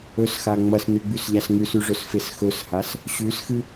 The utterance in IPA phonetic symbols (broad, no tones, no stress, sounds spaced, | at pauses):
ɵ s x a ŋ͡m ɐ s n ʉ ɡ͡b ʉ s ʎ a s ŋ ʉ s ʉ ʐ ɵ s f e s x ɵ s h a s | ɕ ʉ s x ɨ